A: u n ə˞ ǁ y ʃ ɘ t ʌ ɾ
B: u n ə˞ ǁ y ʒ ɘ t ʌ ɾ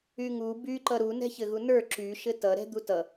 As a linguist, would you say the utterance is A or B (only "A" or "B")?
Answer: A